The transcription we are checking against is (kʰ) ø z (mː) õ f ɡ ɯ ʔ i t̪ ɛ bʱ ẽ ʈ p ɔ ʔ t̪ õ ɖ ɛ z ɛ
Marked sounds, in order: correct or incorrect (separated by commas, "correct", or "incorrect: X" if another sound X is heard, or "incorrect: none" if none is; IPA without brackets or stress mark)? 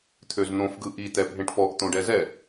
incorrect: t̪ʰ, incorrect: n̪